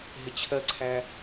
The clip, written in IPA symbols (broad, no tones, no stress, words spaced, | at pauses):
ɦɪt͡ɕʰɜǀʰæ